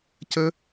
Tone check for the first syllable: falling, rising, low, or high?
high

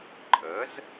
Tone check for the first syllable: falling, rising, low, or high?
rising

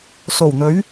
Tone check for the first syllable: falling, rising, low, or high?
low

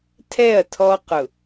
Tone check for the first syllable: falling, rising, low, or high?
falling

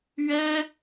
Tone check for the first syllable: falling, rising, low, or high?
high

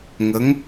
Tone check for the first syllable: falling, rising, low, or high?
rising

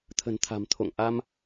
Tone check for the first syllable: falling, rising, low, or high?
low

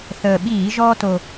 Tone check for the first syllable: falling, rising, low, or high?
low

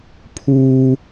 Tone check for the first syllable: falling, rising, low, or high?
high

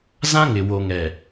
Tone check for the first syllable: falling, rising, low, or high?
high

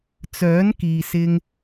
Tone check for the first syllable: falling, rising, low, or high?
rising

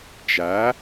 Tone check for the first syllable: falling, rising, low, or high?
rising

